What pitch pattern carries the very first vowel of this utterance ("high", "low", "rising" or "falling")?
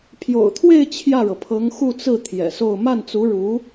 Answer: low